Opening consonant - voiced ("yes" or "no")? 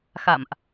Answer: no